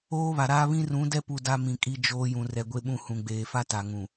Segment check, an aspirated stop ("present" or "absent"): absent